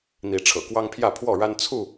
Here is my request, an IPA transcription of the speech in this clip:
n̪i˨˦ʈ͡ʂʰɤ̰˨˩ kwɑ˦ŋpʰjä˥˨pʰwɔ˥˨ɻa˦n t͡sʰu˥˨

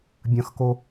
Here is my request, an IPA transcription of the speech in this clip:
bʲɐ̃xko

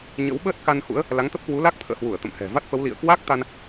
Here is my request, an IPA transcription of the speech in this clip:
ɲə̰˧˥wɓəː˦˥t̚ka˧nhṵ˧˥ə̯ | la˨˦ŋt̪ə˦˥p̚kwu˨˦la˦˥k̚ t̪ʰə̰ː˧˨hwu˧˩ə̯ t̪ə̰˧˨m hɛ̤˨˩ va˦˥t̚fə˨˦wlḭ˧˨ə̯ kwa˦˥k̚t̪a˧n

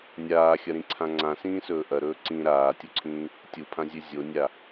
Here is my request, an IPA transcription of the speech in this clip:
nʲaːxʲɐɾĩǀʰã ŋ͡ǀãsĩːsɵː ʔɐɾɵː ǀĩ ɾaːtʲuǀʰĩː | tʲupʰãzʲʉ zʲonʲa

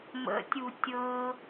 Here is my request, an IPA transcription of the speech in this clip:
mə̰tʲu tʲɤ

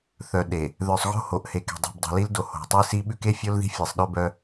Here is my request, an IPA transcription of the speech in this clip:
θœ˨ɗe˨ | ðœ˨sˤɣo̤˦ho˨ʔ he˨ke̤˨dˤi̤˨bdˤi̤˨ li˦ldo˨ ho̤˨tˤi˦si˦ ɓʉ˦ke˦fʲo˦l ði̤˦fʲe˨sˤɗœ˦bœ˦

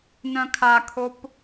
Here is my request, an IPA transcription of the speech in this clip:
nœ̃kʰakʰop

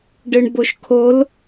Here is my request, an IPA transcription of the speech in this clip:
ɖɯɳboʃkʰol

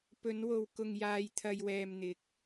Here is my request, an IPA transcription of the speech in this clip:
pɵ˨˧nwo˨w kʊ˨ŋjaː˨j t̪ʰɐ˨jwɛː˨m n̪ɪ˨˥k̚

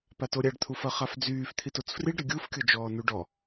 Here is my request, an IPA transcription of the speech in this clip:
patoɾʲaɖ t̪ʰufɐχafd͡zyːf t̪ʰitot͡sfriɖ ɾɪɡʲuf kʲod͡ʒɔːnuɖɔ

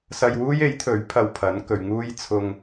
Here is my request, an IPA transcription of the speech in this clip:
sɐ˧jwuː˥j e˨˥jt̪ʰɵ˨˥ɥ pʰɐ˧wpʰɐ˨˥nkɵ˨ɥŋuː˥j t͡sʰʊ˧ŋ

